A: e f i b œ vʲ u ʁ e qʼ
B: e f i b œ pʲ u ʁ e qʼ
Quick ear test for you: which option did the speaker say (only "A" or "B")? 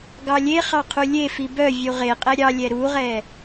A